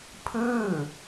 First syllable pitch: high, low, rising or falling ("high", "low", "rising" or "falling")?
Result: falling